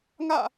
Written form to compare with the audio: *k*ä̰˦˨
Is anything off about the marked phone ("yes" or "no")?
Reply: yes